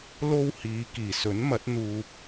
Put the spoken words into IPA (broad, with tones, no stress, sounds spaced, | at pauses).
l o˥ w h iː˨˧ k iː˨˩ s ɵ˨˥ n m ɐ˨˥ t̚ n̪ uː˧ p̚